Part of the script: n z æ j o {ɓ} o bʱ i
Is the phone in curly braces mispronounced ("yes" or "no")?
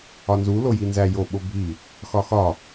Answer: no